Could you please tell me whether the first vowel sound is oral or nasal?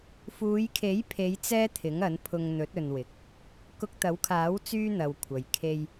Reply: oral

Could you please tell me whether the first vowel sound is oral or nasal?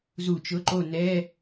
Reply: oral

